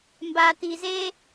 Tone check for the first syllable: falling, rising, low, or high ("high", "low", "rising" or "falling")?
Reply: low